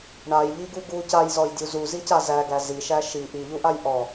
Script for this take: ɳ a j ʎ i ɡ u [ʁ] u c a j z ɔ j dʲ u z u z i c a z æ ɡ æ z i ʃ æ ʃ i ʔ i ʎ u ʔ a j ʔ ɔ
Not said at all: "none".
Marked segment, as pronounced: ɡ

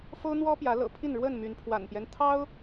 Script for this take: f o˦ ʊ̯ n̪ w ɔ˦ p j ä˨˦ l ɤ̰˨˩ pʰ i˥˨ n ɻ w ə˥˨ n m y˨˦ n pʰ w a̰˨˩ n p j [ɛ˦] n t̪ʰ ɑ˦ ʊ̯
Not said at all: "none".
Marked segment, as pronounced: ɛ˦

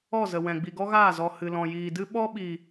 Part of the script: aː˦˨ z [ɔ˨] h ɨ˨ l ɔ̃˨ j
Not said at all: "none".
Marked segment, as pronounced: ɔ˨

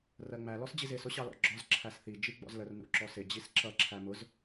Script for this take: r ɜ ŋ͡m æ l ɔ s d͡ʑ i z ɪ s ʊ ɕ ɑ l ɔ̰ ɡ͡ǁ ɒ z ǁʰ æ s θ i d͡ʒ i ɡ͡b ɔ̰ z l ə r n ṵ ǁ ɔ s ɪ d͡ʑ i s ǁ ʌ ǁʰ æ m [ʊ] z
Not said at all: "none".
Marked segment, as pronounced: ʊ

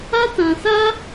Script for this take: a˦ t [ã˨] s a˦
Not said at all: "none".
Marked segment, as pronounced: ã˨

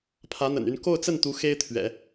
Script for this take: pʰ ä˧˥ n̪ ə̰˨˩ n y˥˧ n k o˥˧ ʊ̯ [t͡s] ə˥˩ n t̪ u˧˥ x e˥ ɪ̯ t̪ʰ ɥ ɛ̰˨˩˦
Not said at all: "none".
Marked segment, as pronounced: t͡s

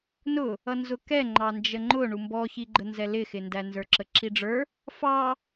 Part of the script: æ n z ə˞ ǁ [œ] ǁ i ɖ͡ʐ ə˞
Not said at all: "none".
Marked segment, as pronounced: ə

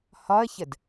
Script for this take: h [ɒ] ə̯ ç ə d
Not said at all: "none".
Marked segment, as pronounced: ɒ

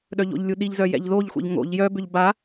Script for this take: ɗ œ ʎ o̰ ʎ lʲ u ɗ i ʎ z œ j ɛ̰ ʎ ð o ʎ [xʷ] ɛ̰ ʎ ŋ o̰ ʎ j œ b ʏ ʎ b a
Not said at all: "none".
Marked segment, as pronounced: xʷ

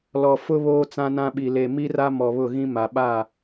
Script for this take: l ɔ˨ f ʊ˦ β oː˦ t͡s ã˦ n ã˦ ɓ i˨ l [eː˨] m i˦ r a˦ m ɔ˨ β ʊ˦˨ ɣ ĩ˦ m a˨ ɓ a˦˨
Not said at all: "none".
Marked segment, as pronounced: e˨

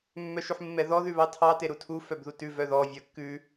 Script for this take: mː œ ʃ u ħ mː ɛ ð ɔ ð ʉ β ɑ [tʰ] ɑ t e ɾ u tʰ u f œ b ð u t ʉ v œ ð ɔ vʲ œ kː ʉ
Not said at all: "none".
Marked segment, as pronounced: tʰ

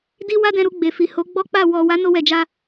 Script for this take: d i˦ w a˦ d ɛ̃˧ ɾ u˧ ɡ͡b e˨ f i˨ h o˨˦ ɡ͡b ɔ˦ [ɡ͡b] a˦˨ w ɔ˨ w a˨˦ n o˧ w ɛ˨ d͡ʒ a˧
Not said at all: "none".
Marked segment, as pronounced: k͡p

